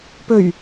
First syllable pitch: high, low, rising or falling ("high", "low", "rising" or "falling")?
low